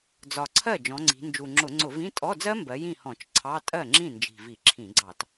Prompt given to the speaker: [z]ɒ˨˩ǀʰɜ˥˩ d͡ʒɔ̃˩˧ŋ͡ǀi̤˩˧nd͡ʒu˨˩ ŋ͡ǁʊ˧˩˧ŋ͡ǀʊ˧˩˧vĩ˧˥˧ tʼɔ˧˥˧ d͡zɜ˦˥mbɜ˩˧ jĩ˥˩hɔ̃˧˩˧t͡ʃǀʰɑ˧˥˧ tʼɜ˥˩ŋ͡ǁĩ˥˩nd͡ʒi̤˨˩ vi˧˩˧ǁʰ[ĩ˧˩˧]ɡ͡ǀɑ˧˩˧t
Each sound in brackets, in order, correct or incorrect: incorrect: d͡z, correct

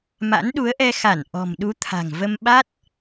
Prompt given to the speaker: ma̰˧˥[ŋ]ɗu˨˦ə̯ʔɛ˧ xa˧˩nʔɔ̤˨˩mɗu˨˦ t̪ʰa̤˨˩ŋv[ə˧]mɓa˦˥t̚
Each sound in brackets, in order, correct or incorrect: incorrect: n, correct

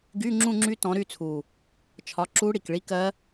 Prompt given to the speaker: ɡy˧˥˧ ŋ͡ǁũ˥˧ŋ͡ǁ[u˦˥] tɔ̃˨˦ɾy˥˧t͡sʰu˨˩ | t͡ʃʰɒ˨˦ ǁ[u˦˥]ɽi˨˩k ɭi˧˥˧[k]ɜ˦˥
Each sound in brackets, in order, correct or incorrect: incorrect: y˦˥, correct, correct

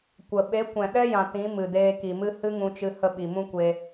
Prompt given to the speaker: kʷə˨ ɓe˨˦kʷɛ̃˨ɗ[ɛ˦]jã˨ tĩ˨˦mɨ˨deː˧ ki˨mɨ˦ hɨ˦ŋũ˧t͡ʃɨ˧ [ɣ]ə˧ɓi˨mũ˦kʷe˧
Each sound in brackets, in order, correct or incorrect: correct, incorrect: h

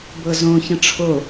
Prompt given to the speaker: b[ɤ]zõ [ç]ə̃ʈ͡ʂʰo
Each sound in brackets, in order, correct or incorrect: correct, correct

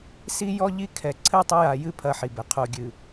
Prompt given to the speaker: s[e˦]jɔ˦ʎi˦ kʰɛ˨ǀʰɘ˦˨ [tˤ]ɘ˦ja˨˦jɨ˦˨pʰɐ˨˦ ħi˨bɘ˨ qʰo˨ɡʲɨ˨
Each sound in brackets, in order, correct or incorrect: incorrect: i˦, correct

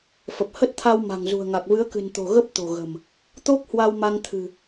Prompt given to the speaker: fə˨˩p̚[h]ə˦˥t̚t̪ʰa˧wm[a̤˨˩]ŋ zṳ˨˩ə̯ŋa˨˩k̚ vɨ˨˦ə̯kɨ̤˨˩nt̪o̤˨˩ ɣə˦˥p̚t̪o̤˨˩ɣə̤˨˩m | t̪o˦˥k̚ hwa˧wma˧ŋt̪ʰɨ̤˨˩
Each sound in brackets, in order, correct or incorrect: correct, correct

